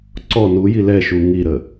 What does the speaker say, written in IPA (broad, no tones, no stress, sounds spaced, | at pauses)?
ǀ ɔ n u j i l ɛ ʃ u ŋ i ɾ ə